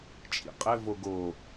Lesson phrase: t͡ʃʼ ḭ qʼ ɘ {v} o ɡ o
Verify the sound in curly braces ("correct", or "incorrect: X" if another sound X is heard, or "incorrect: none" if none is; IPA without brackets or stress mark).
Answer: correct